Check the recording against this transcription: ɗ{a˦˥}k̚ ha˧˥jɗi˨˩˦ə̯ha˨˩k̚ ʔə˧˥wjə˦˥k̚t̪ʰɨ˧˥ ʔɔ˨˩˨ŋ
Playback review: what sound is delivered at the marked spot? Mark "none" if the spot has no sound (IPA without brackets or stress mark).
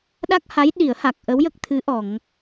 a˦˥